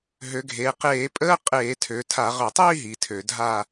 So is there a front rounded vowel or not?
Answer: yes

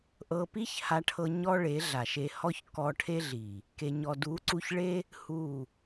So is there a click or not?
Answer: yes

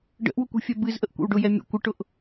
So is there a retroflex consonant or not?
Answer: yes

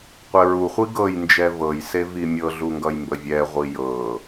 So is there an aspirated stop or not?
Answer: no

